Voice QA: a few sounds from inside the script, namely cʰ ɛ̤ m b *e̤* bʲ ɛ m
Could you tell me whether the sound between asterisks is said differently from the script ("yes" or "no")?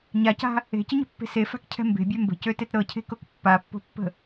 no